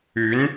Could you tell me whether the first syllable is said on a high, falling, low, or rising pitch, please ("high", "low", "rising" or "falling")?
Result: rising